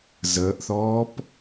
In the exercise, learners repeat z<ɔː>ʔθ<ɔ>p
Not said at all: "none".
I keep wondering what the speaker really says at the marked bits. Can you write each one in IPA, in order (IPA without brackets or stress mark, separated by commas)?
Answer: əː, ɔː